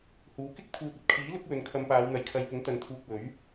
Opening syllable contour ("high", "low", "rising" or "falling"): rising